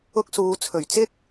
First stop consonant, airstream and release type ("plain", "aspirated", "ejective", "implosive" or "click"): plain